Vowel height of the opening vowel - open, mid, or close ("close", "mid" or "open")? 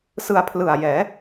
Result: close